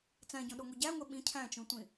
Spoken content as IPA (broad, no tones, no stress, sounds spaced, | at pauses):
t͡s æ̃ ɟ õ ɗ o ŋʷ e ɟ æ ŋʷ e ɓ ĩ cʰ æ̃ t͡ʃ ũ tʷ ĩ